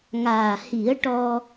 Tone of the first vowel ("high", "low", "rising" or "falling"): low